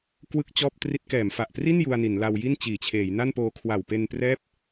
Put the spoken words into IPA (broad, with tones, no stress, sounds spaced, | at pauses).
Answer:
k w ɯ˥˩ k̚ t͡ɕ ɔː˥˩ p̚ t r i˦˥ t̚ k ɛː˩˦ m f a˨˩ ʔ p r i˥˩ n j u˧ a̯ n i˩˦ n l a˧ w j i˥˩ n t͡ɕ iː˩˦ t͡ɕʰ eː˩˦ j n a˥˩ n p oː˧ kʰ w a˨˩ w p e˧ n p r ɛː˥˩ p̚